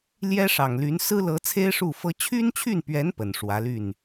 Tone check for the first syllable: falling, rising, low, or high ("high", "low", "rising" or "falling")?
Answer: high